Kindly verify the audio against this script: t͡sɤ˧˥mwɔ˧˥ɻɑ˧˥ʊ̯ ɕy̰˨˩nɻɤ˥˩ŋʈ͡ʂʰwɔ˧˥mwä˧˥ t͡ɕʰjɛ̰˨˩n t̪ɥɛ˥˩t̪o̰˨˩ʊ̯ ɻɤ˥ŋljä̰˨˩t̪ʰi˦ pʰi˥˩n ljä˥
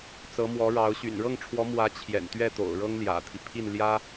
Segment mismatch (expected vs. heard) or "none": none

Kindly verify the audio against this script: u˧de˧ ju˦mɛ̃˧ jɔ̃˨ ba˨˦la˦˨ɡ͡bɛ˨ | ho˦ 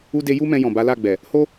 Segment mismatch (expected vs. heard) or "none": none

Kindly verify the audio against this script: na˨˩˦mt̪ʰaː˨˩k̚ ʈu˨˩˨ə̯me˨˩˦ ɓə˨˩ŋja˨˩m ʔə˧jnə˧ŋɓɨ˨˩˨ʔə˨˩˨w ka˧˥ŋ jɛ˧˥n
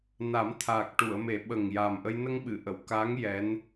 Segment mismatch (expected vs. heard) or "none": none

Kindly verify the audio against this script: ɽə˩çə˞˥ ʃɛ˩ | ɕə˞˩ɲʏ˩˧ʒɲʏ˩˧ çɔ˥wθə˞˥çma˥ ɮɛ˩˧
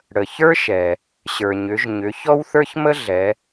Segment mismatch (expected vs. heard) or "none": a˥ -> ə˥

